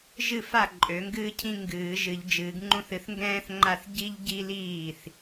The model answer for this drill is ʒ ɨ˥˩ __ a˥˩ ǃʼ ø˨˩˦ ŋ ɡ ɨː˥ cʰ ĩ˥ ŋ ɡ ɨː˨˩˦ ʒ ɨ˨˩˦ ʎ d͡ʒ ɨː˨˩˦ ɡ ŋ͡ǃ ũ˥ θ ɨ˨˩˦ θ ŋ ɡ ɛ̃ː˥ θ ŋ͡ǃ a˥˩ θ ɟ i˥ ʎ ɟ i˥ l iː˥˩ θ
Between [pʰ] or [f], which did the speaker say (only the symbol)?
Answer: f